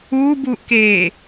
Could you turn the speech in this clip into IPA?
uː b uː ʔ k eː

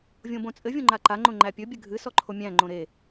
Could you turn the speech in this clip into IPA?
vʲ õ b õ t͡sʼ ɘ vʲ õ ŋ͡ǃ a ǃ a ŋ͡ǃ õ ŋ͡ǃ æ pʲ ɵ bʲ ɘ ɡʱ ɨ s ɔ ǃʰ o mʲ æ̃ ŋ͡ǃ õ ɾ e

